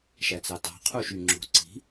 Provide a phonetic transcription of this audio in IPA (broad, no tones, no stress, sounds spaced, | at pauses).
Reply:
ʃ æ t͡s ɑ t ɑ̤ qʰ u ʃ y ŋ͡ǁ o̤ ǀ i̤